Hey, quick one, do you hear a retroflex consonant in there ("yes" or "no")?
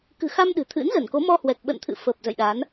no